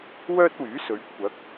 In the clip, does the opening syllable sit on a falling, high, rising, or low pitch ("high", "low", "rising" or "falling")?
high